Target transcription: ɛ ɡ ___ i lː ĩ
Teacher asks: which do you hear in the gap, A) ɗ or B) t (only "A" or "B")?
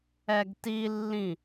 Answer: B